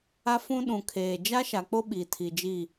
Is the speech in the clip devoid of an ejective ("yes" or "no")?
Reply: yes